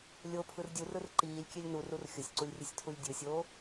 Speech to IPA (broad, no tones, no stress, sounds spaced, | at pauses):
lʲ o pʰ ɯ r dʲ u r ɯ r ǃ iː lʲ kʲ e lʲ n u r u r xʲ ʊ sʲ ǀ u lʲ rʲ ɯ sʲ tʰ u lʲ dʲ ɯ sʲ oː